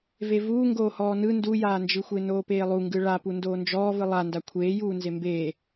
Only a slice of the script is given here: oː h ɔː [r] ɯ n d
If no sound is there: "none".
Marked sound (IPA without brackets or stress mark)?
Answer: n